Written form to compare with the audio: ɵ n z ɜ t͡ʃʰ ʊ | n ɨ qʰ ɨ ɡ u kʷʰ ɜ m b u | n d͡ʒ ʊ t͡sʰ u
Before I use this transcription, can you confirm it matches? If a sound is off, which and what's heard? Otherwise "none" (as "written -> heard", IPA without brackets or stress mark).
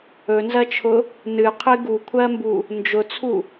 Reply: none